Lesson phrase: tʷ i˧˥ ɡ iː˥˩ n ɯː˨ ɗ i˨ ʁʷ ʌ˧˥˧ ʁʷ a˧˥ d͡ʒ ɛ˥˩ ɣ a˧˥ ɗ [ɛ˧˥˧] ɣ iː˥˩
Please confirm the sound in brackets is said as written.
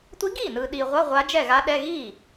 yes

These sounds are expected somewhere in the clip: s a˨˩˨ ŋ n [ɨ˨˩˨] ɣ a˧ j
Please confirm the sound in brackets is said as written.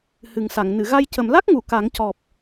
yes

